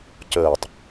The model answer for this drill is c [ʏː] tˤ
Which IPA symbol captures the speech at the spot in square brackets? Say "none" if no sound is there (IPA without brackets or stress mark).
əː